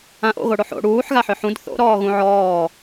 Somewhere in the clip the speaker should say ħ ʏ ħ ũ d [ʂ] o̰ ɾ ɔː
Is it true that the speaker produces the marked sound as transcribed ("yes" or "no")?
no